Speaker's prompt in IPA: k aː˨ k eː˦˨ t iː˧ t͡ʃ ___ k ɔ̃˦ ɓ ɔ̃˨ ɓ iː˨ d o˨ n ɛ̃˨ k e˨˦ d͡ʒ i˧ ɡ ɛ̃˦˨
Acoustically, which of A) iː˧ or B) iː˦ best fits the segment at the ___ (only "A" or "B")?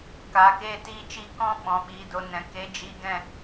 A